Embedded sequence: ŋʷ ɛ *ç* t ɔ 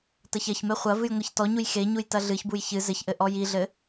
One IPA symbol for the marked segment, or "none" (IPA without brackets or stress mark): ç